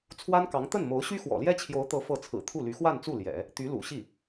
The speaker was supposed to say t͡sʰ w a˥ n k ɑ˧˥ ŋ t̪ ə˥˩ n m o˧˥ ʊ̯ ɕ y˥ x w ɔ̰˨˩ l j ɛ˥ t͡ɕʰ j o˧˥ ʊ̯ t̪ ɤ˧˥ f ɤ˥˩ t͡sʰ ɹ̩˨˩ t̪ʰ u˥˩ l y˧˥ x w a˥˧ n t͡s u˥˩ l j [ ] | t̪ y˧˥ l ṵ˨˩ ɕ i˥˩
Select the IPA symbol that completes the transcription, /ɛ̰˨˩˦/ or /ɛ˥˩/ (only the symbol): ɛ̰˨˩˦